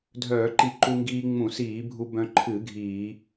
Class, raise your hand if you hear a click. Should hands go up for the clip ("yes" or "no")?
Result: yes